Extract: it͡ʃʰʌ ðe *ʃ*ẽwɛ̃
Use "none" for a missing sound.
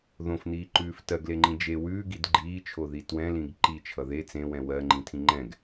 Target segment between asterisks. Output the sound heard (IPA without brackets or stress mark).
t͡s